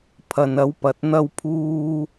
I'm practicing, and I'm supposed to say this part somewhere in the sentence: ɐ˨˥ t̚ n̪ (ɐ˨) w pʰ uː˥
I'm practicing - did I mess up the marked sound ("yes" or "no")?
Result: yes